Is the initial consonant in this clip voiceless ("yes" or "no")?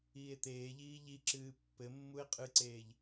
yes